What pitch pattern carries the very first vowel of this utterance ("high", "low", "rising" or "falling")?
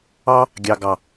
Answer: high